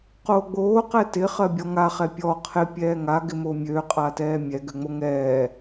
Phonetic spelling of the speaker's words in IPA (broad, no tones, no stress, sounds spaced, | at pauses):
q oː ɡ͡b oː q ɛ t ɪ χ ɜ bʲ ɔ ŋ a χ ɛ pʲ ɔ qʰ ɪ pʲ ɛː ŋ a ɡ ɪ m o mʲ ø qʼ a t ɛː mʲ ɛ ɡ ø ŋ͡m o ŋ ɛː